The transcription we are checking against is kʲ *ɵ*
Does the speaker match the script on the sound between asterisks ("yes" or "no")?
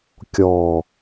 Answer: no